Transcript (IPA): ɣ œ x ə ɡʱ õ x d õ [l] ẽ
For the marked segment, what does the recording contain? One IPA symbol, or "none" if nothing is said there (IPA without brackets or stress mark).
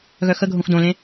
l